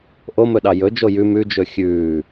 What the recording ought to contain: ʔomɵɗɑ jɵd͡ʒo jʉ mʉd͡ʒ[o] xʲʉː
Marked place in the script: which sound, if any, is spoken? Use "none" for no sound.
ɵ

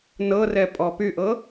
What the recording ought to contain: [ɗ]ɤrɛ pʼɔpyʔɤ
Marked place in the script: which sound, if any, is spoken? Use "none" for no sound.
n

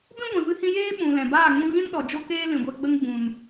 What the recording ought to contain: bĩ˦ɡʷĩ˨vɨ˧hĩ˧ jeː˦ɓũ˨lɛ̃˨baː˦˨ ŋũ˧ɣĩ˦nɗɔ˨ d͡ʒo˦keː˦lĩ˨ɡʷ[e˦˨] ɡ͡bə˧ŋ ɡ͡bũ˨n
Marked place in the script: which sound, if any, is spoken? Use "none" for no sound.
e˧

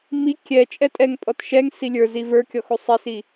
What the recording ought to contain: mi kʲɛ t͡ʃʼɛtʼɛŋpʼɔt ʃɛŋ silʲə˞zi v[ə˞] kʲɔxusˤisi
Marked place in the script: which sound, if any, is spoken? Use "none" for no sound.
ə˞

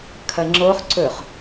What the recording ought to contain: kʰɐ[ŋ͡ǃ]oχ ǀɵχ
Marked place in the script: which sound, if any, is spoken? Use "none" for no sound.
ŋ͡ǁ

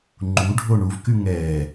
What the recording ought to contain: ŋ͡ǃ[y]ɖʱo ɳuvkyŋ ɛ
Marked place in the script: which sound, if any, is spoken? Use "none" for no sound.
u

